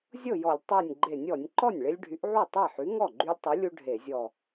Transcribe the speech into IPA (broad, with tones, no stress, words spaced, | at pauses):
zʲɤ˥˩jɔ˧˩˧lʲ tˤu˧˩nʲɡ͡ǃe˧˩˧nʲɔ˧˩˧nʲ ǃɔ˥˩nʲɭe˦lʲɖʱy˨˥ʔʕu˥˩ tˤe˥˩ħy˨˥ ŋɔ˥˩ɡ͡ǃy˦lʲtˤu˨˥lʲu˦ ɖʱe˧˩˧zʲɔ˧˩